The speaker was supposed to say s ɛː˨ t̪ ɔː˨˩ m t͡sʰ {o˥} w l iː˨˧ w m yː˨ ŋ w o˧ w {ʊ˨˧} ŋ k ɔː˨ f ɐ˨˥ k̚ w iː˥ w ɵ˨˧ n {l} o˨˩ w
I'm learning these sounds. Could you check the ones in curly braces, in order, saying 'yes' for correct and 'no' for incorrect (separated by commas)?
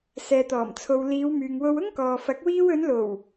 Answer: no, no, yes